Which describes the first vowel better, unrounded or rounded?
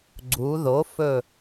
rounded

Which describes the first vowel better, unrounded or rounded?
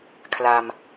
unrounded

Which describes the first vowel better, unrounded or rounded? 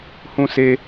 rounded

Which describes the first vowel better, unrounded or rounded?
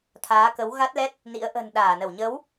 unrounded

